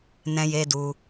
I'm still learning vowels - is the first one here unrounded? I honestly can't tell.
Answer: yes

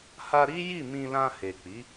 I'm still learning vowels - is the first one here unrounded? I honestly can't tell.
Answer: yes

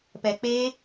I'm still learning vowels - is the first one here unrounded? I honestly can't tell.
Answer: yes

